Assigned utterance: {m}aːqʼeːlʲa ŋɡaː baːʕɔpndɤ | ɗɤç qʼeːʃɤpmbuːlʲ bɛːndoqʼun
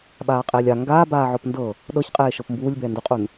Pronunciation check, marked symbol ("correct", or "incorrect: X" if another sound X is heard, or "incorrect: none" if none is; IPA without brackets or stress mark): incorrect: ɓ